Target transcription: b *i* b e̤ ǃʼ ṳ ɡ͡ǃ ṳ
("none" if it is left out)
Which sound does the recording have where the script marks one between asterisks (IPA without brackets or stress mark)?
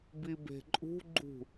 i